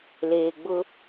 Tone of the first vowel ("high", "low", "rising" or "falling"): low